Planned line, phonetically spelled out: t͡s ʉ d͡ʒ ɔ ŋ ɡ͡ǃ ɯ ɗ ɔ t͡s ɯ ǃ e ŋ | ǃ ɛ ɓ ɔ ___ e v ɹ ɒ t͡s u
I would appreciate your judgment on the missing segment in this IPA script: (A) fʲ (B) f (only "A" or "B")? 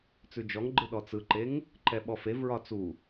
B